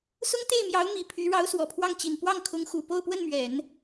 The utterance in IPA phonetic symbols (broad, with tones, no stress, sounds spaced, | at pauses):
s ʊ˥ ŋ t̪ e˥˩ ɪ̯ m j ɑ˧˥ ʊ̯ m i˨˩ pʰ y˧˥ ɻ ɑ˧˥ ʊ̯ s w ɔ˨˩ pʰ w ɑ˥˩ ŋ t͡ɕ i˨˩ n p w ɑ˥˩ ŋ kʰ ʊ˧˥ ŋ x u˨˩ p o˥˧ ʊ̯ p w ə˥˩ n m ɥ ɛ˨˩˦ n